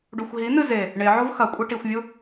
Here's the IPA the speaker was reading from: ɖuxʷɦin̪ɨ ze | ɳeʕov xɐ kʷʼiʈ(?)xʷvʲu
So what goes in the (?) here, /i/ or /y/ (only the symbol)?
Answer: i